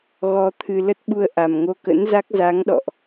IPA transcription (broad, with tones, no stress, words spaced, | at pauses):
ɣɔ˧ t̪ʰɨ˧ lə˦˥t̚ɓu˧ə̯ ʔa˨˩mŋo˧kə̰˧˥nza˦˥k̚ za˨˦ŋɗɔ̰˧˨ʔ